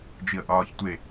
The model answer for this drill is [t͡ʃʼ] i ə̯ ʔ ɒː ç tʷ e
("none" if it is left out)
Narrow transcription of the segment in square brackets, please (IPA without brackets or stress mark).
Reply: d͡ʒ